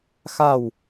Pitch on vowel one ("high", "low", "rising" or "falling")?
falling